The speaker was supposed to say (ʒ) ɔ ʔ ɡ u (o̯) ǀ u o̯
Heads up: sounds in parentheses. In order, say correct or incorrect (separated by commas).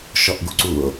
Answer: incorrect, incorrect